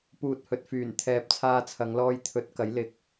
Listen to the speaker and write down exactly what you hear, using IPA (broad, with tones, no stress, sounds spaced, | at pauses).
p uː˨ t̚ h ɵ˨ t̚ f yː˨˩ n t̪ʰ ɛː˨ p̚ t͡sʰ aː˧ t͡sʰ ɐ˨˧ ŋ l ɔː˧ j t̪ʰ ɵ˨˥ t̚ k ɐ˨˥ j l ɪ˨˥ k̚